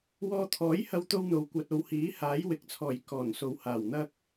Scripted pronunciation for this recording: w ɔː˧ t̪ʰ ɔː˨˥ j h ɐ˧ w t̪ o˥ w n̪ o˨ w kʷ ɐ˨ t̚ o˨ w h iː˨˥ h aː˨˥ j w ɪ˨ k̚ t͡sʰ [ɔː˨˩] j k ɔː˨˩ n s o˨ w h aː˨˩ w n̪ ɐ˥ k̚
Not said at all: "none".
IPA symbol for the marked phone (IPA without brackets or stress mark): ɔː˨˩